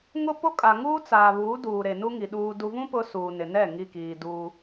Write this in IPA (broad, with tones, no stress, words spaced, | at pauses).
ŋʊ˦po˦ kʼa˨ ŋuː˦t͡saː˨βuː˨˦duː˨ ɾe˨nu˦ŋi˨ ɗuː˨du˨vũ˦ pʊ˦suː˨nɪ˨ nɛ˦˨ ŋi˦˨kiː˨duː˦